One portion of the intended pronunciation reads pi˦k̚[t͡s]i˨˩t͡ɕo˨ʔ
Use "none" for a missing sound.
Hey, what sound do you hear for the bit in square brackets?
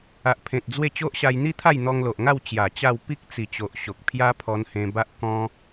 t͡s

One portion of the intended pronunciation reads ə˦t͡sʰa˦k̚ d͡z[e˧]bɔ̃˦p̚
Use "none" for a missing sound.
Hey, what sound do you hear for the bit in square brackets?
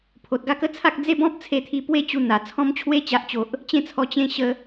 e˦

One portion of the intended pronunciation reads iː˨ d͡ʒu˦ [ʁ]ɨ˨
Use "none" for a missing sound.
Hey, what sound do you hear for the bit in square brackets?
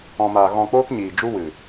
w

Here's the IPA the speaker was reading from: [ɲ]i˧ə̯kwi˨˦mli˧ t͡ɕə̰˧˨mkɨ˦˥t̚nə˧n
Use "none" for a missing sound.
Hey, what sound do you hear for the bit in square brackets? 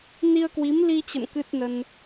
n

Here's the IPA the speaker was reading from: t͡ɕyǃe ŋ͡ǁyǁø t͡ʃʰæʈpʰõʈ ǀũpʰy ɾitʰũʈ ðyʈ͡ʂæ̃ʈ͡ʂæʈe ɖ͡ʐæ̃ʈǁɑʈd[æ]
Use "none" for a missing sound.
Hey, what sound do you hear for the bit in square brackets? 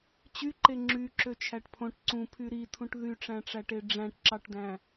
æ̃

